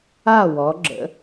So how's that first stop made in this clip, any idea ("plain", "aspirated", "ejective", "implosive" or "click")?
click